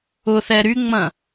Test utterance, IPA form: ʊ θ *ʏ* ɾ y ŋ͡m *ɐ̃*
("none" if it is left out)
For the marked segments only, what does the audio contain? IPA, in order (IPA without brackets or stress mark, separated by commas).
ɛ, ɐ̃